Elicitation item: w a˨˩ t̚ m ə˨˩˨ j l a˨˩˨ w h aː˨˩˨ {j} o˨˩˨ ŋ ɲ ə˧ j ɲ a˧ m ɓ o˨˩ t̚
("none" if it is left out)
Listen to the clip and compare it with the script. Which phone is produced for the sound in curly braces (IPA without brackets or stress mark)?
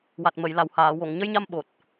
w